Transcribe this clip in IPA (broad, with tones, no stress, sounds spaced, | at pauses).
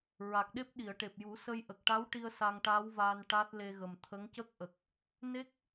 ɹ a˨˩ k̚ ɗ e˦˥ p̚ ɗ i˨˩˨ ə̯ ʈ e˨˩ p̚ j u˨˩˦ s ə˧ j ʔ ə˨˩ k̚ ʈ a˧˥ w ʈ i˧ ə̯ s a˧ ŋ ʈ aː˧˥ w v aː˧ n ʈ a˦˥ t̚ l e˧ ɣ ə˨˩ m t̪ʰ ə˧˥ ŋ c ə˦˥ k̚ ʔ ə˨˩ k̚ | n e˦˥ k̚